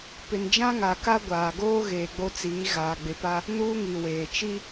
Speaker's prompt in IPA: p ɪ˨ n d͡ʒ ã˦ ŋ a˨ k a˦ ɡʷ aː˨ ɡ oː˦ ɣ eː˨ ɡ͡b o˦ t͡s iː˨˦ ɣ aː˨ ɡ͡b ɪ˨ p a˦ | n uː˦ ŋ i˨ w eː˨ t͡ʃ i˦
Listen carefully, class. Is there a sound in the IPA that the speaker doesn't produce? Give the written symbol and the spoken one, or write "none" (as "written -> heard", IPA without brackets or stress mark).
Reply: none